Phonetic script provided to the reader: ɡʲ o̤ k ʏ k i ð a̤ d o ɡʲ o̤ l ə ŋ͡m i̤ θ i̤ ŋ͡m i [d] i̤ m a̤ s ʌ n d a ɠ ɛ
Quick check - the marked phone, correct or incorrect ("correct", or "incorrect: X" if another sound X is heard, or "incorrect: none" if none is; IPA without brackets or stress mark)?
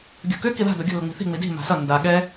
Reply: correct